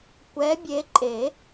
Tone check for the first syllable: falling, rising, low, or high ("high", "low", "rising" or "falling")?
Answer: rising